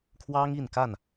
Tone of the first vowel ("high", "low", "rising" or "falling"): high